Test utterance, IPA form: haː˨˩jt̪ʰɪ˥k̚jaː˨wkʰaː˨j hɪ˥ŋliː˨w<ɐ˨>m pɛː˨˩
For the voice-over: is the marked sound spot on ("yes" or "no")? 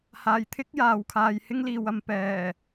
yes